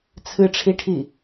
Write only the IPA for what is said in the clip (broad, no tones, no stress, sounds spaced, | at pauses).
t͡sʰ ɨ ʈ͡ʂʰ i ʈʰ i